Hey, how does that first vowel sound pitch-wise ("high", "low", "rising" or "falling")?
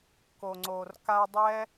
low